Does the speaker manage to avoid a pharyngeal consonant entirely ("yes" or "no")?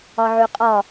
no